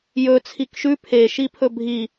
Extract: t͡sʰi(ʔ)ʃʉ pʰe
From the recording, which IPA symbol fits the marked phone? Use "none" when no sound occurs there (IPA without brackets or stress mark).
k